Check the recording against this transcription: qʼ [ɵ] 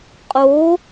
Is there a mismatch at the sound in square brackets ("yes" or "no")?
yes